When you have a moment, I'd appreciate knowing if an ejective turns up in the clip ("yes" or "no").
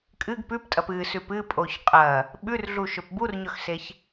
yes